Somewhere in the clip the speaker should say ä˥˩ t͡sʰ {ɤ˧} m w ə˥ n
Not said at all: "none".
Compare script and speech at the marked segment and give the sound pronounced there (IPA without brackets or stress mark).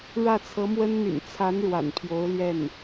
ɤ˧˥